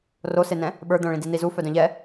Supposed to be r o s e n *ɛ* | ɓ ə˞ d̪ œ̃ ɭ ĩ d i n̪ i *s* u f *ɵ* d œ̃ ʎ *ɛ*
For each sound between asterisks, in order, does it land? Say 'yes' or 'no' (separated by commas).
no, no, no, yes